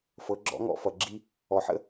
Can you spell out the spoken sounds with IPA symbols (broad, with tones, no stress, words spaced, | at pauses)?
fɤ˩˧ɡ͡ǁɔ̰˧˥ŋɔ̰˧ fʌ˩ɡ͡ǁi˥ | ɔ˩ħə̰˥